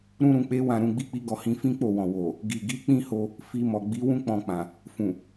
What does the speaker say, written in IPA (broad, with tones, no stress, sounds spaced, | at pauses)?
ɾ ũ˦ ɾ ũ˧ k͡p e˦ w ã˦˨ ɾ ũ˧ ɡ͡b i˦ k͡p i˦ ɡ ɔ˦˨ h ĩ˧ f ĩ˦ k͡p o˦˨ w ɔ̃˨ w o˨ | ɡ i˨ ɡ i˨˦ k͡p ĩ˦ h o˧ | f i˧ m ɔ˨ ɡ͡b i˨˦ w ũ˦ k͡p ɔ̃˧ k͡p ã˨ | f ũ˨